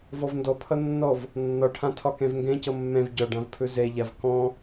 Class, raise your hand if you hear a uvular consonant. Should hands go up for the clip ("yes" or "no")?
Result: no